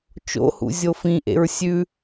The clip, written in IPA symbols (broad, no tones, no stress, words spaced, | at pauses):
t͡ʃo̰hṵ zʲofĩʔḛɹ sʲʉ